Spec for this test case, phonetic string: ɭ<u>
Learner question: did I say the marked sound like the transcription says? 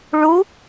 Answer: yes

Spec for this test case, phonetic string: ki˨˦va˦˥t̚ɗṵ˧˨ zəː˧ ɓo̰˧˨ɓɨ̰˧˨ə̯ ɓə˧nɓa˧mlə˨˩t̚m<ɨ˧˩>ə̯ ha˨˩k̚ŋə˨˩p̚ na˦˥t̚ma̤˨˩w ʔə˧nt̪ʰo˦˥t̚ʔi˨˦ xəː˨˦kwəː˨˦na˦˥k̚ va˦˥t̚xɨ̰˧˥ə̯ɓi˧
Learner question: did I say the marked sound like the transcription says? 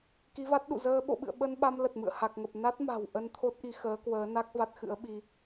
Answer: no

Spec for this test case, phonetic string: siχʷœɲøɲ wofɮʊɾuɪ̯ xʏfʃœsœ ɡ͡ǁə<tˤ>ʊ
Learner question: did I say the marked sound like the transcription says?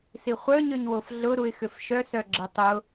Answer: yes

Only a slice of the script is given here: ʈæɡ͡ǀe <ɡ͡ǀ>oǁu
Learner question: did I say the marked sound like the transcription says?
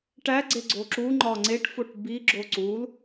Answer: yes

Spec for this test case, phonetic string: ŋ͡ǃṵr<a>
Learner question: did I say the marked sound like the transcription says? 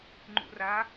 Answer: yes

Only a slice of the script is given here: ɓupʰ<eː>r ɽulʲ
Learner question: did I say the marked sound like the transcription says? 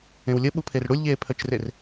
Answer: no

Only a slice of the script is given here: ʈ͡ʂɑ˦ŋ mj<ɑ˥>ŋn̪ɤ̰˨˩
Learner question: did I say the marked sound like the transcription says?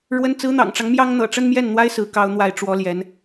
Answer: yes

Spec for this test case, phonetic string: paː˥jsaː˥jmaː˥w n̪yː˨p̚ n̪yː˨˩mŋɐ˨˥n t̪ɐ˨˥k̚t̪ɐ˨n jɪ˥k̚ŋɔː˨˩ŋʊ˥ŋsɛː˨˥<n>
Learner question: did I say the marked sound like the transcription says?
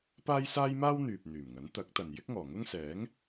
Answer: no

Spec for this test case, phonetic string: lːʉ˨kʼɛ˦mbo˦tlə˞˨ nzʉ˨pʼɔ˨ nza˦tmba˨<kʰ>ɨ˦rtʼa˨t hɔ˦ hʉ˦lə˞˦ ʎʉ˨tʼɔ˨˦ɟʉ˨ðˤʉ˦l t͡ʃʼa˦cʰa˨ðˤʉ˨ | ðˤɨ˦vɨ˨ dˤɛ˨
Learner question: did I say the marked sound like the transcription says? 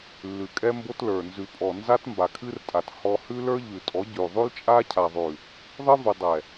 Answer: yes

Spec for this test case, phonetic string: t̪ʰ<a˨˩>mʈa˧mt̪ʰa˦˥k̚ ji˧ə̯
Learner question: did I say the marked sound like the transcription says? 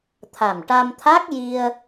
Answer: yes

